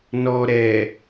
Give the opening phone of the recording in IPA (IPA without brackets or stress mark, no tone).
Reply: n